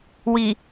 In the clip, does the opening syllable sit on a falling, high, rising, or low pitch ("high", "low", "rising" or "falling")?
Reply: low